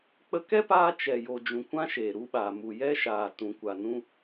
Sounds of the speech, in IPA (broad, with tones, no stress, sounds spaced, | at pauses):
k͡p ə˧ k ɛ˦ p aː˧ t͡ʃ ɛ˨ j o˨ d͡ʒ ũ˨ kʷ ã˦ ʃ e˨ ɾ u˦ ɓ a˨ m u˨ j ɛ˦ ʃ aː˨ t ũ˨ kʷ a˨ n ũ˦